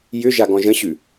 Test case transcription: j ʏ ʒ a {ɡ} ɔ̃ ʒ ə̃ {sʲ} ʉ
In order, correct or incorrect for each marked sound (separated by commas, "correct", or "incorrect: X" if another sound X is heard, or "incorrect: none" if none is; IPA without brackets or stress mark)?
correct, incorrect: ɕ